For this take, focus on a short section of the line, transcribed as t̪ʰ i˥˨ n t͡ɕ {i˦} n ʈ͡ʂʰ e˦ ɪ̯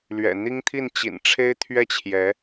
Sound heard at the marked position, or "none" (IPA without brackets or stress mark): ḭ˨˩